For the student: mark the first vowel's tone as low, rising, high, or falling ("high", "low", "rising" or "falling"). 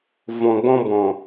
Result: low